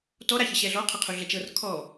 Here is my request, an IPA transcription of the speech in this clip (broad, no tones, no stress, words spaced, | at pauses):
tɔ ɾaçəɕɛɮɔ qʰɐqʰuɮɐt͡ʃɤr kʰɔ